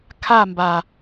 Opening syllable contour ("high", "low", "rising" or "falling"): falling